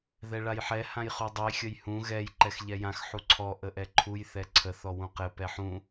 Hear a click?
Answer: yes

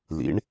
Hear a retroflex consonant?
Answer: yes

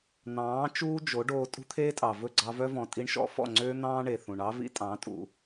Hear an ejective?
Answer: yes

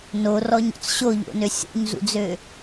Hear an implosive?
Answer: no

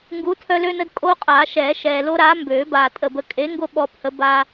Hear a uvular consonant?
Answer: yes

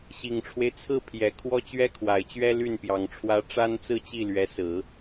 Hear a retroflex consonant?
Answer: yes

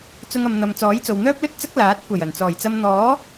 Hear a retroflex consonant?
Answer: no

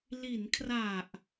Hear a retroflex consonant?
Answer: no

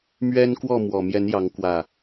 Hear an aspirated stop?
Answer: no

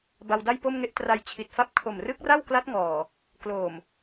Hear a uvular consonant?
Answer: no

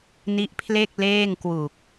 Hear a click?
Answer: no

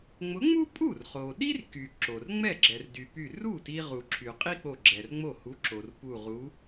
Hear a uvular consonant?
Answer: yes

